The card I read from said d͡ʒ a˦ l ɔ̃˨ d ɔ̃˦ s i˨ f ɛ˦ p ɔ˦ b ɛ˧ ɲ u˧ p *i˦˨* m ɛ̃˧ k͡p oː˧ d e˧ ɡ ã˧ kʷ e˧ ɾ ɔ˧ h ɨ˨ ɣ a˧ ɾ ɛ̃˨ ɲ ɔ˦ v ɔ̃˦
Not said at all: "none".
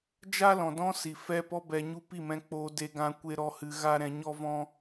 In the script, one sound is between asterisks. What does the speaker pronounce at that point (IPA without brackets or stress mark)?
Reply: i˦˨